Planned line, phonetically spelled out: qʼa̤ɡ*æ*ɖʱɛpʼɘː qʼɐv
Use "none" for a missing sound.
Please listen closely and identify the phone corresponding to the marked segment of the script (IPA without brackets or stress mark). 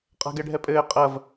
ɛ